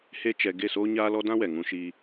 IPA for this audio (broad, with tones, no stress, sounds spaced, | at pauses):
h e˦ t͡ʃ ɛ˧ ɡ e˦˨ s oː˦ ɲ aː˦ l ɔ˦ d ã˦ w ɛ˨ ŋ ũ˧ ʃ iː˦